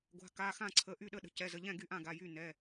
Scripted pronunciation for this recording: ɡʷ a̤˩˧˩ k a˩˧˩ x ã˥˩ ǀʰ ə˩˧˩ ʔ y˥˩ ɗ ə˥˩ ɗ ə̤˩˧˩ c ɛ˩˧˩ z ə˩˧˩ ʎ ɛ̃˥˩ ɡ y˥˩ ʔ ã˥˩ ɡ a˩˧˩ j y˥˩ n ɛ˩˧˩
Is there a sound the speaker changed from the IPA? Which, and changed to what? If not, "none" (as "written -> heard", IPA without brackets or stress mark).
none